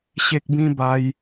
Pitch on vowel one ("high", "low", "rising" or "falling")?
high